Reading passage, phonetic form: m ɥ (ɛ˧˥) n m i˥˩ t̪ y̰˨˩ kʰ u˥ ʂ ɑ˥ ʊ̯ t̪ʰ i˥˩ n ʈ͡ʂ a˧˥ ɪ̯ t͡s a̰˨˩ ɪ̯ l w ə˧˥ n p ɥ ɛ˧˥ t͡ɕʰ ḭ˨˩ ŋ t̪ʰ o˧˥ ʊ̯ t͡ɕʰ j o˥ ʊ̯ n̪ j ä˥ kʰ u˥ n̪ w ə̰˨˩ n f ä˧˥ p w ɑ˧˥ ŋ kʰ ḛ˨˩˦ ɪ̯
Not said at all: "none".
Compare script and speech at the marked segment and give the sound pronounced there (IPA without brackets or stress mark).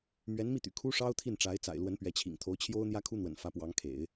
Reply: ɛ˧˥